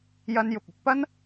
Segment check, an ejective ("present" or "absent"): absent